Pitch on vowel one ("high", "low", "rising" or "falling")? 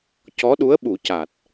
rising